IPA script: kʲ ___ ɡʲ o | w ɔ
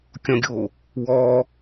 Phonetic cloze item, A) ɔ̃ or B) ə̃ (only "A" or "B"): A